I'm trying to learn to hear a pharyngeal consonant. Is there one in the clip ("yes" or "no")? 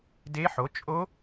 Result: yes